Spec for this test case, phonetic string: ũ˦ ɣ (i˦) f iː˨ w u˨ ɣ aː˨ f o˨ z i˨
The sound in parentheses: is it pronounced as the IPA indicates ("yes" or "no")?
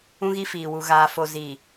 yes